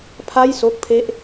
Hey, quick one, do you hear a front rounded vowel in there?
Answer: no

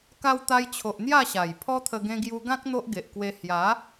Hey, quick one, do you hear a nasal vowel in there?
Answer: yes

